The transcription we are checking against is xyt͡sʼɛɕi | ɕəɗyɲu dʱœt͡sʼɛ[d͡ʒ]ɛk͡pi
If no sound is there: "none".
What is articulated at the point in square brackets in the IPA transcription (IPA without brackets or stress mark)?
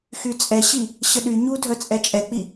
t͡ʃʼ